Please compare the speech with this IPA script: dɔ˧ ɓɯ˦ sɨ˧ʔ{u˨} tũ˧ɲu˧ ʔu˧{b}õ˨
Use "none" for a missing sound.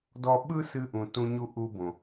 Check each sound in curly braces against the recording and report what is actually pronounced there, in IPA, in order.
ũ˨, b

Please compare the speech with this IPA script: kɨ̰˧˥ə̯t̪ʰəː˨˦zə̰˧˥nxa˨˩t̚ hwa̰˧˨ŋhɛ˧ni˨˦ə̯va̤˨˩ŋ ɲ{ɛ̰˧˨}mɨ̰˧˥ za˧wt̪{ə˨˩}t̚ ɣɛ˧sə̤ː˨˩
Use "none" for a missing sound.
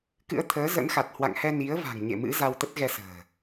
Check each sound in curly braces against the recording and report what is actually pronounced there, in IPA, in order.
ḛ˧˨, ə˦˥

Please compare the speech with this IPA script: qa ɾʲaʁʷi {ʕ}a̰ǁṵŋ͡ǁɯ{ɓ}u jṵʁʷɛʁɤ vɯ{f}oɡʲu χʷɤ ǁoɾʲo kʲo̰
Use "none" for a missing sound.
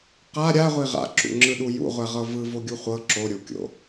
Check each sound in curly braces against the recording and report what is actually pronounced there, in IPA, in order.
ʁ, ɗ, v

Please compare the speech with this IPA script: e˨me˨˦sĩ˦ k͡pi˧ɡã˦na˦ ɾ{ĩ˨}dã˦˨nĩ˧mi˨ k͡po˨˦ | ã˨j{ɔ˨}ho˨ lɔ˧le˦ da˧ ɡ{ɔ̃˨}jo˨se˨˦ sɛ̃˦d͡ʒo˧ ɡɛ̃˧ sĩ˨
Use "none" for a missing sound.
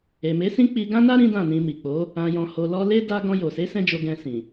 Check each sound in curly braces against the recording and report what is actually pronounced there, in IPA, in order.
ĩ˦, ɔ̃˨, ɔ̃˧

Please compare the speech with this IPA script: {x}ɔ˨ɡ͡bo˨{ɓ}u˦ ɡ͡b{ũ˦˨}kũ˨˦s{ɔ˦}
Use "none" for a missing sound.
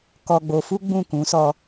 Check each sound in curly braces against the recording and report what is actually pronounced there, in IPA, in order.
k, f, ũ˦˨, ɔ˧

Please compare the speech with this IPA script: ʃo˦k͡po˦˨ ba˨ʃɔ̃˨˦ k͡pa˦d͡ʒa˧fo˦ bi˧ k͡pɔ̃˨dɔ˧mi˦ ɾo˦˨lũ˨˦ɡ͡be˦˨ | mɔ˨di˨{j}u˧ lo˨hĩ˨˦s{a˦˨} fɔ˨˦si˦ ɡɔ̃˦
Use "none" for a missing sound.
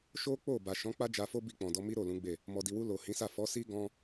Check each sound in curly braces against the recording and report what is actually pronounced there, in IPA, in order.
w, a˦˨

